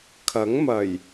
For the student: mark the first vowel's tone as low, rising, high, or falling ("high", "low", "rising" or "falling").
rising